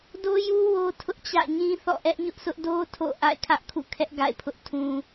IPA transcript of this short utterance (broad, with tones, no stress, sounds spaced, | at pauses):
d o˦ j u˦ w o˦ tʰ ʊ˦ ʔ t͡ɕ ä̰˦˨ ɲ ĩ˦ θ ɔ̰˦˨ ʔ ɛ˦ ʔ ɲ ʊ˦ ʔ s ʊ˦ ʔ d o˦ tʰ o̰˦˨ ʔ a̰˦˨ ɪ̯ kʰ ä˦ ʔ kʰ ṵ˦˨ kʰ ɛ˦ ʔ ɡ a̰˦˨ ɪ̯ pʰ ʊ˦ ʔ tʰ ũ˦